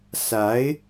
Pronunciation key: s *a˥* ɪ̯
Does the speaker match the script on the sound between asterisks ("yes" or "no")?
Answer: no